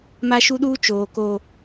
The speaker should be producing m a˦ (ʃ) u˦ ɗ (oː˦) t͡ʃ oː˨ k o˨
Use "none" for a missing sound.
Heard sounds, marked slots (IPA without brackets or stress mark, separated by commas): ʃ, uː˦